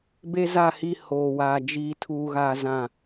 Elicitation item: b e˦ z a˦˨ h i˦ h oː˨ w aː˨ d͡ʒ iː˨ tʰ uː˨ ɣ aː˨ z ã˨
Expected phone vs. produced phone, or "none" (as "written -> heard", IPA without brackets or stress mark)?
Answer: none